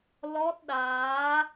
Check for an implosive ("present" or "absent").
present